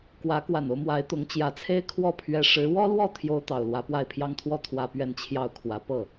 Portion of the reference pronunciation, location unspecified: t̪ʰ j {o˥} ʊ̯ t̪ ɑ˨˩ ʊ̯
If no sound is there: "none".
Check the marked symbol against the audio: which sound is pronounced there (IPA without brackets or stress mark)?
o˥